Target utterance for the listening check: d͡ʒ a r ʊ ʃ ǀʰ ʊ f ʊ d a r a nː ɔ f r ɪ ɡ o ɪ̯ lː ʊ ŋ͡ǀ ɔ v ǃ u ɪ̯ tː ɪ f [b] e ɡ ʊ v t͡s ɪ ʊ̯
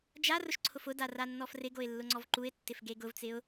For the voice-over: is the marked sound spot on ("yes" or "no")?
no